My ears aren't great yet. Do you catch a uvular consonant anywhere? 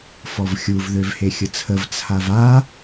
no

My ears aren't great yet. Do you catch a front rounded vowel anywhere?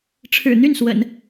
yes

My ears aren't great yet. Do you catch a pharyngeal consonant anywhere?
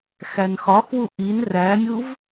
no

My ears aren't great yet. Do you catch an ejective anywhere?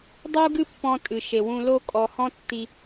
yes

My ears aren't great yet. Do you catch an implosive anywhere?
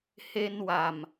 no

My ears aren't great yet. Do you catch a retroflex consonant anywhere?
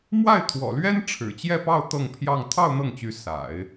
yes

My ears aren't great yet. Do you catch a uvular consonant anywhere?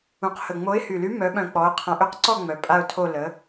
yes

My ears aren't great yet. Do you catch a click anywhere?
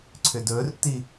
yes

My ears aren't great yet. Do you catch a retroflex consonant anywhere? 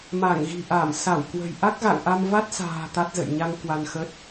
no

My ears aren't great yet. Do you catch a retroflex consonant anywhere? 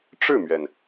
yes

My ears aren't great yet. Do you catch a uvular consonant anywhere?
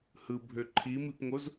no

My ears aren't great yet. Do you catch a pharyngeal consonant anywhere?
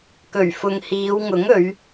no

